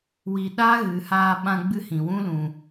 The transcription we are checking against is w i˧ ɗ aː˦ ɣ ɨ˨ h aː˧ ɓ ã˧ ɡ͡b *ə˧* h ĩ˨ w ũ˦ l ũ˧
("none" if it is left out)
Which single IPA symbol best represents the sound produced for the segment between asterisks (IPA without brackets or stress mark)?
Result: ɨ˧